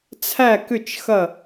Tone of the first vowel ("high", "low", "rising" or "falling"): falling